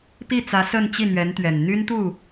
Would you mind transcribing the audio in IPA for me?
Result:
p i˥˩ t͡s ä˧˥ s ə˥˧ n t͡ɕ i˥˩ n̪ ɥ ɛ˧˥ n t̪ ɥ ɛ˨˩ n n̪ y˥ n t̪ u˥˩

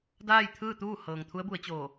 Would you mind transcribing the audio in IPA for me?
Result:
d aː˥˨ j t̪ʰ ɯː˥˨ t̪ uː˥˨ h ɤː˩ ŋ t̪ʰ u˧˥ ə̯ b u˩˧ ə̯ t͡ɕ oː˧˩

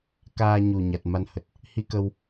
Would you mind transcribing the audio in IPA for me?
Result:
k aː˧ ɲ u˨˩ ɲ a˨˩ t̚ m a˧ n h ə˨˩ t̚ | h i˧ k ə˧ w

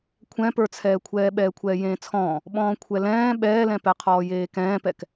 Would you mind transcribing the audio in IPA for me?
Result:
kʷʰ ɛ̃ p ə˞ t͡sʰ ɛː kʷʰ ɛː ɓ ɛː kʷʰ ɛː j ẽː t͡sʰ ɔ̃ː | ɓ ɔ̃ː kʷʰ ɛ l ɛ̃ː ɓ ɛː l ɛ̃ p ɛ qʰ ɔː j eː k ɛ̃ː p ɛ k

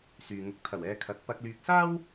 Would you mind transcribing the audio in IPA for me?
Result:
s yː˨ ŋ ʊ˨˥ k̚ t̪ʰ ɐ˨˩ w ɛː˨ kʰ ɐ˨˥ t̚ p ɐ˧ k̚ l yː˧ k̚ s aː˥ w

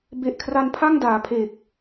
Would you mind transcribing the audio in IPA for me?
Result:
b e˨˩ ʔ kʰ r a˧ n pʰ a˥˩ ŋ d aː˩˦ pʰ e˨˩ k̚

